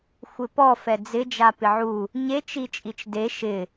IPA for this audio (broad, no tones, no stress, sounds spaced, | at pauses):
xʷ ɪ p ɔ f ɛ d͡z ɪ d͡ʒ a p ɪ ʕ u | ɲ e t͡ʃ i t͡ʃʼ i t͡ʃ d e ʃ ɪ